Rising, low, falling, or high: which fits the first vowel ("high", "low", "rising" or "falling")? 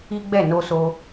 high